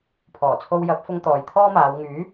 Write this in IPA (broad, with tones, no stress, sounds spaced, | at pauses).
pʰ ɔː˨˩ t͡sʰ o˧ w j ɐ˨˥ p̚ f ʊ˧ ŋ t̪ ɔː˨ j t̪ʰ ɔː˥ m aː˨˧ w ŋ yː˨˥